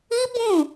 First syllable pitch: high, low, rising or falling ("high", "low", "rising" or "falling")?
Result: high